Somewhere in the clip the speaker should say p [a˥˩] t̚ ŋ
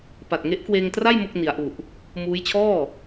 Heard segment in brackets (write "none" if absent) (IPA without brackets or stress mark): a˨˩